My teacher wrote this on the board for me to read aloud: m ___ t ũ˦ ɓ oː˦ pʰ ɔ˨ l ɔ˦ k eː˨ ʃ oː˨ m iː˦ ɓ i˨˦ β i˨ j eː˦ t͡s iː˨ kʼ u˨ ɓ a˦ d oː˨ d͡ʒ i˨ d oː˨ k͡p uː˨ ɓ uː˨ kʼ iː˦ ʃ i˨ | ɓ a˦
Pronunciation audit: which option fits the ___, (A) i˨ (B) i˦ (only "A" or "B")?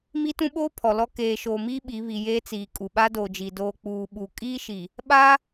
B